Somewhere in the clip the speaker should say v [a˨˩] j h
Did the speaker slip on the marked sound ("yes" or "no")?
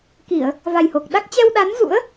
no